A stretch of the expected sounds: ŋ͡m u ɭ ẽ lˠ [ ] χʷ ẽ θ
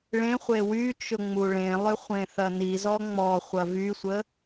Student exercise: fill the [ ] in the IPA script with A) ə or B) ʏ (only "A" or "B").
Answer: B